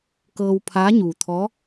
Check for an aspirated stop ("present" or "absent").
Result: present